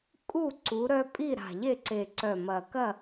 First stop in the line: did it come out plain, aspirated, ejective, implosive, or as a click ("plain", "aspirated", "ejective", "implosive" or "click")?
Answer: ejective